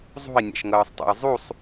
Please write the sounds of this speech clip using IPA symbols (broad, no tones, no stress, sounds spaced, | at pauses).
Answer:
zˤ ṳ i̯ nʲ a̰ ʃ ŋ ɤː sˤ tˤ o̰ j zˤ u sˤ